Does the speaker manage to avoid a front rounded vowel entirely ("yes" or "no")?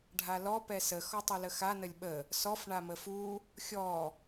yes